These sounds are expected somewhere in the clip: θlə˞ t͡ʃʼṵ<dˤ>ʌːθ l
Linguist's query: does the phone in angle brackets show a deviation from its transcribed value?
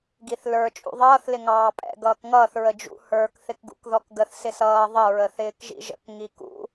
yes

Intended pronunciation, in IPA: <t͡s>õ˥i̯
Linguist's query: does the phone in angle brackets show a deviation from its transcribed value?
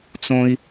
no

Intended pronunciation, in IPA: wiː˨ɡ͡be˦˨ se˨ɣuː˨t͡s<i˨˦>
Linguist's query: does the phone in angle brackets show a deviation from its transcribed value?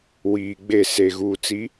no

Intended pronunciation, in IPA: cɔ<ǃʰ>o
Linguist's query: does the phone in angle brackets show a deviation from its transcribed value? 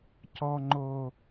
yes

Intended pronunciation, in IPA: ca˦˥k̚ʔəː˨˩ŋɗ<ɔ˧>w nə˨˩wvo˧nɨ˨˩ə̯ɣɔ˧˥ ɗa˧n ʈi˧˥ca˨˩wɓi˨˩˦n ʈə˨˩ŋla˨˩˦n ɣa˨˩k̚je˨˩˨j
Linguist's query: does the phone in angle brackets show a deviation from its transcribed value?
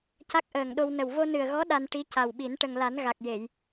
yes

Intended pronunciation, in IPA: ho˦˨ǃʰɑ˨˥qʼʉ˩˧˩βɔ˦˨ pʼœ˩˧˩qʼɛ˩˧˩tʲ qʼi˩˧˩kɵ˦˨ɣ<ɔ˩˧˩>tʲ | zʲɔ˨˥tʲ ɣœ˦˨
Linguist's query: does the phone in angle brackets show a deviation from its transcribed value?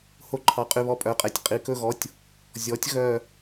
no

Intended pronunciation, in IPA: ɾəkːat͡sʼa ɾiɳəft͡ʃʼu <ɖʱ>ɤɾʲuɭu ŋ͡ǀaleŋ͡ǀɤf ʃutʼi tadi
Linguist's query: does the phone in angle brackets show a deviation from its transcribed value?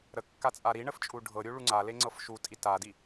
no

